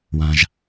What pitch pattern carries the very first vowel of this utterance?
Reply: low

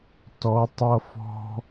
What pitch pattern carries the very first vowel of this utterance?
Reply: rising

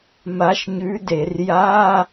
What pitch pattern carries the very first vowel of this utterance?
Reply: rising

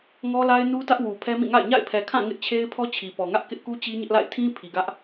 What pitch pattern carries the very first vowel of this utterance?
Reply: high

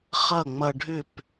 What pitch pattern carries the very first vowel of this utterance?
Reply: falling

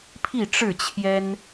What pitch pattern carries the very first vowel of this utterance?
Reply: falling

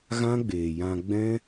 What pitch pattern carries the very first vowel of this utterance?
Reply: high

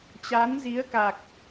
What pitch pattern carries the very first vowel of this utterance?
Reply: rising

